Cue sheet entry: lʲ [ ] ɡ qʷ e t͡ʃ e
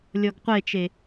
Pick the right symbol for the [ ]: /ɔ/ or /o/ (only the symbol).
ɔ